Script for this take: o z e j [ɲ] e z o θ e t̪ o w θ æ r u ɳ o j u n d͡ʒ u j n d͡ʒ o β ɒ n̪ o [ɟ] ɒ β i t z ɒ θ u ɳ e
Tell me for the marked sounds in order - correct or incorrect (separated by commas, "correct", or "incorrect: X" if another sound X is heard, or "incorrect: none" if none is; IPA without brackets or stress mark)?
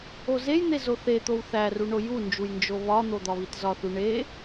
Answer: incorrect: n̪, incorrect: d̪